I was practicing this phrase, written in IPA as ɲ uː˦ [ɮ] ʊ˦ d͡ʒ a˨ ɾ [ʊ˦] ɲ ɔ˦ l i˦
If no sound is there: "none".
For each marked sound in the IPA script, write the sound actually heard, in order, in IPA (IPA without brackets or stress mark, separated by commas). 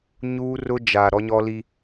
r, ɔ˦